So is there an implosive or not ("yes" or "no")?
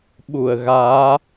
yes